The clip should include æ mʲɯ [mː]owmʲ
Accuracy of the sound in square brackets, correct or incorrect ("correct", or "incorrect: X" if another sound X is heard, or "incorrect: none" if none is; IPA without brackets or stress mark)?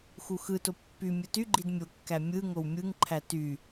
incorrect: ŋ